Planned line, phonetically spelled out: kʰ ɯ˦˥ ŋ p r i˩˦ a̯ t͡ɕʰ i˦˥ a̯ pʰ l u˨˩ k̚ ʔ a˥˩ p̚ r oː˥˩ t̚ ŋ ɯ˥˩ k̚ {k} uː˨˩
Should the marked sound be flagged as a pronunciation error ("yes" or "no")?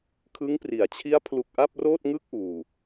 yes